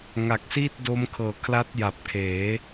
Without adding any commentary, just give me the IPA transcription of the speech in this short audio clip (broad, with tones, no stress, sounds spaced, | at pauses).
ŋ a˨˩ k̚ s iː˥˩ t̚ d o˦˥ m kʰ ɤː˨˩ kʰ l a˦˥ t̚ j a˨˩ p̚ kʰ eː˩˦